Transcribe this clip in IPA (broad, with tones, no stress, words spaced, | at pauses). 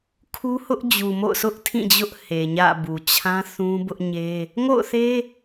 kʰu˦hʊ˦ʔ d͡ʑu˨mo̰˦˨ʊ̯sʰʊ˦ʔ tʰĩ˦˨d͡ʑʊ˦ʔ he˨ɲä̰˦˨bu˨ t͡ɕʰã˦θũ˦ bʊ˦ʔɲe˦ | ŋo̰˦˨ʊ̯θe˦